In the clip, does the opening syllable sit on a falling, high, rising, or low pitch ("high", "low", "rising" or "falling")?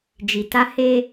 low